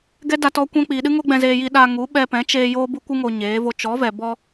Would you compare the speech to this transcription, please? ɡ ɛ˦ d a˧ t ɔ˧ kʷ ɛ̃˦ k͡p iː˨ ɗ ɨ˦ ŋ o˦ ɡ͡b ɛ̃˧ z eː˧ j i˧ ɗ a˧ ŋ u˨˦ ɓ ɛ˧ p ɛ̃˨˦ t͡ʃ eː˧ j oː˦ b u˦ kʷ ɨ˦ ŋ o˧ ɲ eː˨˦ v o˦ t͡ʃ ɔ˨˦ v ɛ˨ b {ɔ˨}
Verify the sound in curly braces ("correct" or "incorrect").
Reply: incorrect